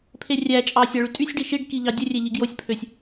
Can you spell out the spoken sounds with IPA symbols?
pʰ e rʲ æ t͡ʃʼ ɑ sʲ ɑ ɭ y tʼ y sʲ ɖ i ʃ i ɖ k i ʎ ɑ dʲ ø rʲ e ʎ i ɡ j o sʲ pʰ ø sʲ

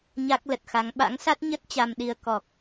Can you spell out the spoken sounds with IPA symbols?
ɲ a˦˥ k̚ l ə˨˩ t̚ x a˨˦ ŋ ɓ a̰˧˥ ŋ s a˦˥ t̚ ɲ ə˦˥ t̚ t͡ɕ a˧ m ɗ i˧ ə̯ k ɔ˨˩ k̚

